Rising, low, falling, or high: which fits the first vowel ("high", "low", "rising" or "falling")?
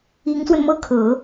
rising